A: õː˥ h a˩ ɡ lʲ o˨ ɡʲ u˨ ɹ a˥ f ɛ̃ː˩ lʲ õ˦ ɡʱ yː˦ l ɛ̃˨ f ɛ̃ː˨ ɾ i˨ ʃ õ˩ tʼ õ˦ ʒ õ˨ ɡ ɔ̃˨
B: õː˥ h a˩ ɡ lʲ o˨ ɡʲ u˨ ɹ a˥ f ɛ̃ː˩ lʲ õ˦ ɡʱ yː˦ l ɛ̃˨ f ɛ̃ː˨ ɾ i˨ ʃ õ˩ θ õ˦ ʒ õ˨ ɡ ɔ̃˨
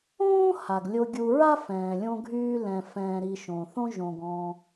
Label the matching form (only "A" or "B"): B